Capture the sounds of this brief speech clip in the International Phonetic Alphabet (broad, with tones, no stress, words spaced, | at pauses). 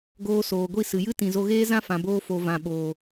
ɡoː˧soː˨ɡʷi˦˨ sɨ˨jɨ˦ tĩ˨zo˧ɣeː˦zã˦ fã˧boː˦fo˧ vã˨ɓoː˨